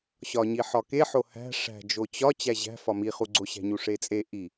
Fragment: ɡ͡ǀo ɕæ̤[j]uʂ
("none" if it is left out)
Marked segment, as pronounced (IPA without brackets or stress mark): ɲ